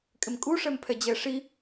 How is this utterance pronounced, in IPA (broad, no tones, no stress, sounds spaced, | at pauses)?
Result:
kʼ ɪ m kʼ u ʂ ɛ m pʰ ɛ d͡ʑ ɛ ʂ i